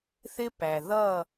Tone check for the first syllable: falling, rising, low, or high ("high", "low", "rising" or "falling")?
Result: high